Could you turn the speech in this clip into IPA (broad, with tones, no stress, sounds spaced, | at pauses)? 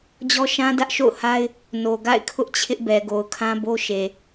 d͡ʑ ɔ˦ ʃ ã˦ d ä˦ ʔ ʃ o̰˦˨ ʊ̯ h a˦ ɪ̯ | n o˨ ɡ a̰˦˨ ɪ̯ kʰ ʊ˦ ʔ t͡ɕʰ ɪ˦ ʔ b ɛ˨ ɡ o˨ ʊ̯ kʰ ã˦ b o˦ ʃ e˨